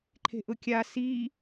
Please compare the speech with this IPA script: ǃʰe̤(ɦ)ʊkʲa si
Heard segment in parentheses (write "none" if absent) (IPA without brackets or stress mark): ʔ